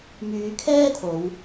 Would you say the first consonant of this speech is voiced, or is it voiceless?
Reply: voiced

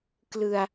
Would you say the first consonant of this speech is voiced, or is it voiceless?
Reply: voiceless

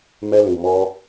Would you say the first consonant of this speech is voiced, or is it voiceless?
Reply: voiced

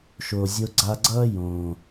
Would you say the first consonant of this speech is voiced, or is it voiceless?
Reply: voiceless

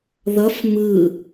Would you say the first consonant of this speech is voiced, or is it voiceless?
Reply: voiced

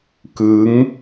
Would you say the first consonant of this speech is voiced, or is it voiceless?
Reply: voiceless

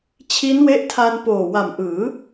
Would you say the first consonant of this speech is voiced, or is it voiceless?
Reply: voiceless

